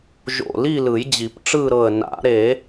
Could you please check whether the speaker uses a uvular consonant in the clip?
no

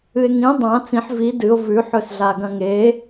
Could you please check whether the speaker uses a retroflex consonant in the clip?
no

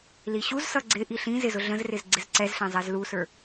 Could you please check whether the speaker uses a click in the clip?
yes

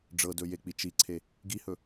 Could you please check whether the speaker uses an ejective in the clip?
no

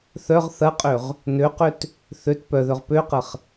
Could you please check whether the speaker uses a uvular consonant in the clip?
yes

